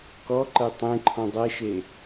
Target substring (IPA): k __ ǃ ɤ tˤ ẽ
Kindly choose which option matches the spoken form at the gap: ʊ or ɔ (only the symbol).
ɔ